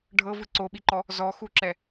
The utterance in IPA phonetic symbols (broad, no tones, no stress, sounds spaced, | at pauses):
ɖʱ ɤ v ɯ ǀ o ɓ i ǃ ɔ | z ɔ x u ǁ ɛ